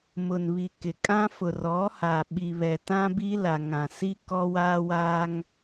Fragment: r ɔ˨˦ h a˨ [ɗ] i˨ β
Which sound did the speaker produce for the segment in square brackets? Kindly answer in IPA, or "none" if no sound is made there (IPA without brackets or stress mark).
ɓ